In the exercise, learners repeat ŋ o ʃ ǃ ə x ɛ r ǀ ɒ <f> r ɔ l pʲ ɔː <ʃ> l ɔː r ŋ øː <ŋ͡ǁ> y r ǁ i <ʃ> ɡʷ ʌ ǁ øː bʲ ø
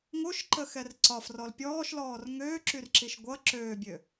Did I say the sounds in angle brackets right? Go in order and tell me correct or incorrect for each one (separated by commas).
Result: correct, correct, incorrect, correct